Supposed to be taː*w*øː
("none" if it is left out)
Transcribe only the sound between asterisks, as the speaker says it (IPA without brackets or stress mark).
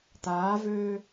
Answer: v